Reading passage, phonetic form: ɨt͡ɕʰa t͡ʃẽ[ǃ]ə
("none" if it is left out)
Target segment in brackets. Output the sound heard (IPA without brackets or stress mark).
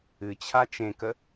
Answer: k